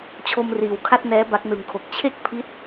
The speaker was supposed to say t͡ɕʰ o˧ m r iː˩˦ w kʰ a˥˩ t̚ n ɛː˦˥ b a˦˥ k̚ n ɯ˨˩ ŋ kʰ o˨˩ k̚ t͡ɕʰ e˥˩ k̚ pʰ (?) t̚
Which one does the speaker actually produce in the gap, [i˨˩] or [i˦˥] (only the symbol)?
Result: i˦˥